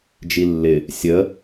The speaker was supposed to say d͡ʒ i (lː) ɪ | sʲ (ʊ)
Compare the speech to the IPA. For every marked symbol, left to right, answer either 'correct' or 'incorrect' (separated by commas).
correct, incorrect